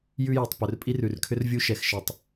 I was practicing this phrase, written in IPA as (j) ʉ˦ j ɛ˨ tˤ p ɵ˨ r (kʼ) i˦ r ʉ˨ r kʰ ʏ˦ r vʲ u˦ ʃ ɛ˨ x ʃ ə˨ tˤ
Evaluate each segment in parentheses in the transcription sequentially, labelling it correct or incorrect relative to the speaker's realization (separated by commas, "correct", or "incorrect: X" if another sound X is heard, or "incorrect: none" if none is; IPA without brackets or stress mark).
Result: correct, incorrect: pʼ